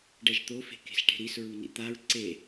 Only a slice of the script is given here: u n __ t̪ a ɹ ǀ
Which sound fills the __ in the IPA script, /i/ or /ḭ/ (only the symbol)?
ḭ